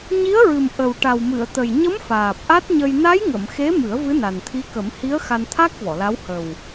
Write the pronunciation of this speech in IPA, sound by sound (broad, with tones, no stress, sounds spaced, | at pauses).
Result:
ɲ i˧˥ ə̯ ɹ ɨ˨˩ m ʔ ə˨˩ w ʈ a˨˩ w m ɨ˨˩˨ ə̯ t̪ ə˨˩ j ɲ ə˧˥ m f aː˨˩ p̚ ʔ a˦˥ t̚ ɲ ə˧ j n a˧˥ j ŋ ə˨˩˨ m x e˧˥ m ɨ˨˩˦ ə̯ v ɨ˧˥ n a˨˩ n t̪ʰ i˧˥ k ə˨˩˦ m h i˧˥ ə̯ x a˧ n t̪ʰ a˦˥ k̚ v ɔ˨˩˨ l a˧˥ w h ə˨˩ w